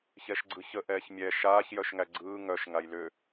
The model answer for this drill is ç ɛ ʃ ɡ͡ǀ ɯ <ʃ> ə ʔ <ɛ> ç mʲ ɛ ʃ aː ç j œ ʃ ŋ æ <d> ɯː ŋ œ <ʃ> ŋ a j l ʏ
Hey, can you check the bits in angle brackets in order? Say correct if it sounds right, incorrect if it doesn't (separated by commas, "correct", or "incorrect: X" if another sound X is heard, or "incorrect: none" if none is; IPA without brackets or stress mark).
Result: incorrect: ç, incorrect: ɛː, incorrect: ɡ͡ǀ, correct